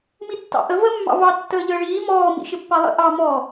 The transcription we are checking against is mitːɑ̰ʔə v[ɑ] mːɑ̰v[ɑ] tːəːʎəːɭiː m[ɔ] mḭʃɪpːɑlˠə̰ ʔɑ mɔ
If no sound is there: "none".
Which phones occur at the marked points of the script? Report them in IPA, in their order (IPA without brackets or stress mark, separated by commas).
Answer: ə, ɑ, ɔː